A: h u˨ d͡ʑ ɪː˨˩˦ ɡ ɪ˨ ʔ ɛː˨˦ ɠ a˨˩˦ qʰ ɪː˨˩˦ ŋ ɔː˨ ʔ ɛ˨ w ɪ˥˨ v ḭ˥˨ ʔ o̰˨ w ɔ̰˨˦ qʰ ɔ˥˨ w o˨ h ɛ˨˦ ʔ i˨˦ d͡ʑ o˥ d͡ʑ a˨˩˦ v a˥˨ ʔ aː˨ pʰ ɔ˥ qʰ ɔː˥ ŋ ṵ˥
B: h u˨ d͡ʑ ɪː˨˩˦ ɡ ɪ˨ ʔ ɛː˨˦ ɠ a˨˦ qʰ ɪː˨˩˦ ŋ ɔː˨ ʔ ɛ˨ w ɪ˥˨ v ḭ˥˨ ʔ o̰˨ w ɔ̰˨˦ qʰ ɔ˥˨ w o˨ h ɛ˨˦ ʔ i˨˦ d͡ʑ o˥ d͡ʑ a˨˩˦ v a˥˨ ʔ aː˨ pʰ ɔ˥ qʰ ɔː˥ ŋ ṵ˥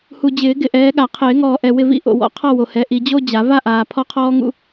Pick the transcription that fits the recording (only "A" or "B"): A